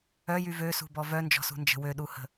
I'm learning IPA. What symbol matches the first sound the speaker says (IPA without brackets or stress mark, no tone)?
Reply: œ